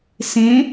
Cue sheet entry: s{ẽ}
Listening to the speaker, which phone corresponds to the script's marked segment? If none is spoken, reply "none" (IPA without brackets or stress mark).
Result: ẽ